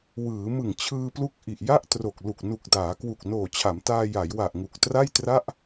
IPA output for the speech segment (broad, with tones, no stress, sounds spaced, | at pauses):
w ɯː˩˦ m ɯ˨˩ ŋ t͡ɕʰ ɯː˧ p l u˦˥ k̚ ʔ i˨˩ ʔ j a˥˩ ʔ t r o˨˩ k̚ l u˨˩ k̚ n u˨˩ k̚ d aː˩˦ k w u˨˩ k̚ n oː˨˩ t͡ɕʰ a˩˦ m t aː˧ j a˩˦ j w a˨˩ ʔ ŋ u˨˩ k̚ t r a˥˩ j t r a˥˩ ʔ